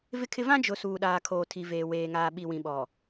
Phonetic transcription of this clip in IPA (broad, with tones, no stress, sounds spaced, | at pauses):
v ɪ˦ kʰ ɪ˦ v ã˦ d͡ʒ ʊ˨ s uː˨ ɗ aː˨ kʰ oː˨ tʰ i˨ v eː˨ w eː˨ ŋ aː˨ ɓ i˨ w ĩ˨ ɓ ɔ˨